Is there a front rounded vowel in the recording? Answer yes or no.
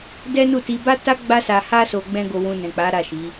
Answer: no